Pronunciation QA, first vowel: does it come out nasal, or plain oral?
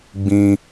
nasal